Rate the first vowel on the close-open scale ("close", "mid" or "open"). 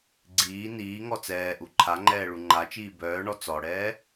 close